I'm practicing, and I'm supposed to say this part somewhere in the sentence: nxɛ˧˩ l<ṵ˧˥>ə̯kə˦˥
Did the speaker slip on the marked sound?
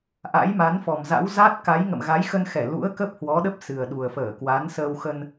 no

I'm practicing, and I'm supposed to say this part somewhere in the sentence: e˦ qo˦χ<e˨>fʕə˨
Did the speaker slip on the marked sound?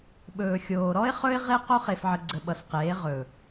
no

